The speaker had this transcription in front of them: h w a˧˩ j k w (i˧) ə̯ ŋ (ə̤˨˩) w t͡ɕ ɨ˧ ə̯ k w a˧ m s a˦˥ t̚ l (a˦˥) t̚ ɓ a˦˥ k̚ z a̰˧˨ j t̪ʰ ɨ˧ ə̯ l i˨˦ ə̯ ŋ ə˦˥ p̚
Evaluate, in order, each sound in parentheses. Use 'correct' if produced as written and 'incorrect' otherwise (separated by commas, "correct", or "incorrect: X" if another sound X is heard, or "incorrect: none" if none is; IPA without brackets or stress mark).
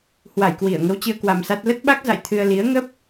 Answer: incorrect: i˧˩, incorrect: ə˧, incorrect: ə˦˥